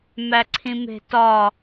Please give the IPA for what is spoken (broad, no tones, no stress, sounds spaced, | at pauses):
m æ ǀʰ ĩ m e̤ t ɒ